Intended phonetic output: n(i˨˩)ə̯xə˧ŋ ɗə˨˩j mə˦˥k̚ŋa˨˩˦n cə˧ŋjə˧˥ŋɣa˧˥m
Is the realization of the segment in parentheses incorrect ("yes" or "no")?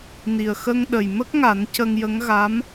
no